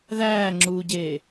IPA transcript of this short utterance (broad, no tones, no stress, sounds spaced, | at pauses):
ð æː ŋ͡ǁ uː ɟ eː